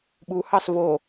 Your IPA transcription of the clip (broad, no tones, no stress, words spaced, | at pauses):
ɓuhɑs vo